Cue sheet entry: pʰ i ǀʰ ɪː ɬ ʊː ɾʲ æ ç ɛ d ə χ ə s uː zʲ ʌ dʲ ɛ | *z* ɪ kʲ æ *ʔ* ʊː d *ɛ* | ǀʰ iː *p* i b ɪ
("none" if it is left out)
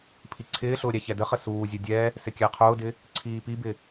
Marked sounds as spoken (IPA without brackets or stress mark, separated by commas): s, qʰ, ɪ, p